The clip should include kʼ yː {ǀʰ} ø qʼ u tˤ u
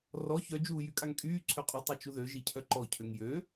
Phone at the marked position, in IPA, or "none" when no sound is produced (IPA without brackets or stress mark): ǀʰ